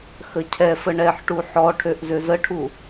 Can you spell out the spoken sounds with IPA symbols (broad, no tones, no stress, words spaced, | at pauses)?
xəcʰɛfə ɳɛħʈu ħɔʈʰøʔ zøzəʈʰu